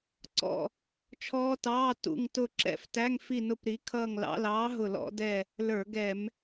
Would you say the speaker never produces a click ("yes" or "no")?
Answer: no